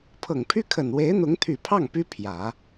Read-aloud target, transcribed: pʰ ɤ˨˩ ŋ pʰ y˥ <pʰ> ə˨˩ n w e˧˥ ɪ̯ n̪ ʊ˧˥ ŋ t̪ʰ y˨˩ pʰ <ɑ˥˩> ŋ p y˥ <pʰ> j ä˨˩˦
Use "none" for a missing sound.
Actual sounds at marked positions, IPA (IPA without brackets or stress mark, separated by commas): kʰ, ɑ˥˩, pʰ